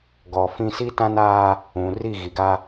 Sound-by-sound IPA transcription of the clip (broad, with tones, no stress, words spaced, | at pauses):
ɡɔ˨fĩ˦ si˦tã˦naː˦ | ũ˨ ri˦˨ ɣi˨ɡa˦